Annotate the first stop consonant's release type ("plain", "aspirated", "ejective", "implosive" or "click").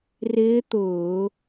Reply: plain